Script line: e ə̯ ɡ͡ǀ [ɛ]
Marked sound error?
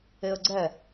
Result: no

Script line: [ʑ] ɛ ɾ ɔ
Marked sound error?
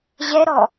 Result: no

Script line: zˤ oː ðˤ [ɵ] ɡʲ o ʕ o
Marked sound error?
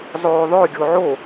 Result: yes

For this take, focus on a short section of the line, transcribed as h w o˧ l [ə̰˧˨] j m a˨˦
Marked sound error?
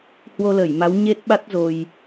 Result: yes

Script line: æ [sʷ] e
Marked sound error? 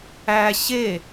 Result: yes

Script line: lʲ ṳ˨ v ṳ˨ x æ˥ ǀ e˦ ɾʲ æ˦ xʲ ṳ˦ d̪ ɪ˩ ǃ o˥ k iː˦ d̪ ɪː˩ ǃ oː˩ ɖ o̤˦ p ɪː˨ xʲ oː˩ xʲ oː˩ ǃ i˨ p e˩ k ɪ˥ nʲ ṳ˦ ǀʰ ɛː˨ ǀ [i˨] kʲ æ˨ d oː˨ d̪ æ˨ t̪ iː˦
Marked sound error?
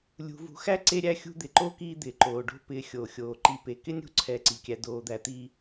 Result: yes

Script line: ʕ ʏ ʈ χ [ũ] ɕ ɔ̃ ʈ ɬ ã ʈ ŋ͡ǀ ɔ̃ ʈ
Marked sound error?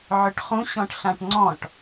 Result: no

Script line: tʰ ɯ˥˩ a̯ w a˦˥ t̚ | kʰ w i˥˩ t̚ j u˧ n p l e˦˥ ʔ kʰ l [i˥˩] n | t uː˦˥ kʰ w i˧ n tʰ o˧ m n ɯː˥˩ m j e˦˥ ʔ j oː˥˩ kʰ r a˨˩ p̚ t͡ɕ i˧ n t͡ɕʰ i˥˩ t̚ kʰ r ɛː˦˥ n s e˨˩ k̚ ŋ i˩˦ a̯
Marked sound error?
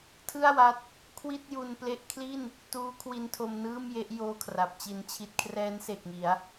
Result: no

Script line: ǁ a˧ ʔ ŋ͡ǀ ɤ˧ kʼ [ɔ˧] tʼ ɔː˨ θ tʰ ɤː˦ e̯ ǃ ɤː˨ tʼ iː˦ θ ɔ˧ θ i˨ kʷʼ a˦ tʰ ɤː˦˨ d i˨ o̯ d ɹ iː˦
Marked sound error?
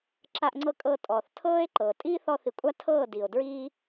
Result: yes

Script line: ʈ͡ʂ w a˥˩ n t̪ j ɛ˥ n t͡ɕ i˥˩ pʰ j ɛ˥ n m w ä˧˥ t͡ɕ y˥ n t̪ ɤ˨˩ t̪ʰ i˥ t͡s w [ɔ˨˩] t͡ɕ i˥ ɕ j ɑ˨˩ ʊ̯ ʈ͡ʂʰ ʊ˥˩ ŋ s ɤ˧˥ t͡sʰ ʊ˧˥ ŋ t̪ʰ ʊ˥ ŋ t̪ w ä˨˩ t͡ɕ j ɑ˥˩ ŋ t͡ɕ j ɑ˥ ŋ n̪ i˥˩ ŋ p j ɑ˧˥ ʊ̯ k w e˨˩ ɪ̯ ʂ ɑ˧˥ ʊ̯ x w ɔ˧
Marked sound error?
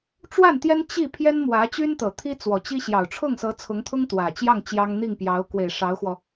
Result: no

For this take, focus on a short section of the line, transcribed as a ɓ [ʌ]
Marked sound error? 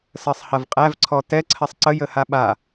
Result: yes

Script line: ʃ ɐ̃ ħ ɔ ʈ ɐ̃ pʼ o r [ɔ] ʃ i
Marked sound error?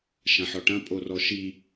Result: no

